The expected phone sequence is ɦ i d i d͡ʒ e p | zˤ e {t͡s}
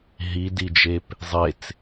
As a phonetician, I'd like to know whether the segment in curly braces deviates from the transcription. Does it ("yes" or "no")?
no